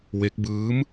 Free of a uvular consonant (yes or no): yes